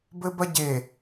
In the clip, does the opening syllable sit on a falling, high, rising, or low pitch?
high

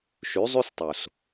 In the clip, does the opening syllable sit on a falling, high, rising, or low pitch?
rising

